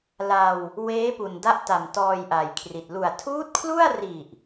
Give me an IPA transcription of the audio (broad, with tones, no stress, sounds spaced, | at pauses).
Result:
l a˧ w | w eː˦˥ p u˨˩ n d a˦˥ ʔ t a˨˩ m t ɔː˧ j ʔ a˨˩ j kʰ r i˨˩ t̚ l u˨˩ a̯ tʰ uː˦˥ t̚ kʰ l u˥˩ a̯ r i˨˩ ʔ